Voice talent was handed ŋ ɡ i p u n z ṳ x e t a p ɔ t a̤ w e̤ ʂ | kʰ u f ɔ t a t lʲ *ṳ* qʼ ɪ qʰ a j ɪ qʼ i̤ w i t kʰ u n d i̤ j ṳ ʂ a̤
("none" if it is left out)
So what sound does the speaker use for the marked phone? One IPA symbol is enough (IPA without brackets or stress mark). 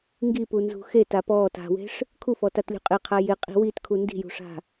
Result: ṳ